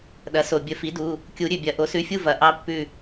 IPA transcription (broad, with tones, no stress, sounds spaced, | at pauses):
ɗ ɐ˩˥ s o˩ bʲ ə˨˩˦ f i˩˥ d u˩˧˩ | kʲ u˨˩˦ ɾʲ ʉ˩ bʲ ɐ˨˩˦ ʔ o˩˥ s ʉ˩˧˩ fʲ u˦˨ v ɐ˨˩˦ ʔ ɑ˦˥ pː ʉ˦˨